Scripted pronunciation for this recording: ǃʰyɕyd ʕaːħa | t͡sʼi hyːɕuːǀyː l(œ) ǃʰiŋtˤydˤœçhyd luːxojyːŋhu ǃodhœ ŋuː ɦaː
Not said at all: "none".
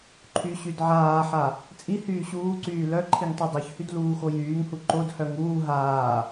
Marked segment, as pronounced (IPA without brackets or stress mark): œ